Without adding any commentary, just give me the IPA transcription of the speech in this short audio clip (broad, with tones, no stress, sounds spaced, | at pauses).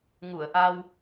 ŋ u˧˩ ə̯ ʔ a˧ w